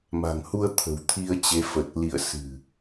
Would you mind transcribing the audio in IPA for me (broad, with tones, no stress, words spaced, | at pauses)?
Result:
ma̤˨˩ŋhu˧ə̯ t̪ʰə̤˨˩w t̪ʰi˧ə̯t͡ɕe˨˦ fə˨˩t̚lḭ˧˨ə̯ sɨ̤˨˩